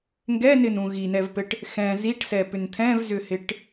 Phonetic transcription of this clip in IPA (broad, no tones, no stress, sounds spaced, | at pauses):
ŋ ɡ ɛ n ɪ n ũ ɣ i n ɛ v p ɘ ʈ | x ɛ̃ z i ʈ s ɛ p ʏ n t̪ʰ ɛ̃ v z ʏ h ɪ ʈ